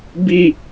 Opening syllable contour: falling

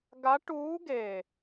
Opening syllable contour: rising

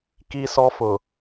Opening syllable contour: high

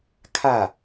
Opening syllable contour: falling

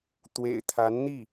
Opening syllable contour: low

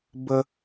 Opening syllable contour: high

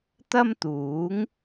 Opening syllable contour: high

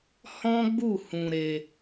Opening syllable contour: high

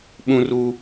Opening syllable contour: high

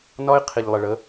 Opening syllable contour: high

